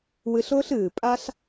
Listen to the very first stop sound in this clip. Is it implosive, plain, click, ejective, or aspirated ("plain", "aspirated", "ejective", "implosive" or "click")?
ejective